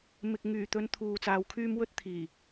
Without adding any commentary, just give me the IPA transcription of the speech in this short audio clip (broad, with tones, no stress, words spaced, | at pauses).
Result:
mɪ˨k̚ŋyː˨˩t̪ɵ˧n t̪ʰuː˨t͡saː˨˧wkʰyː˥m wɵ˥t̚ t̪ʰiː˨˩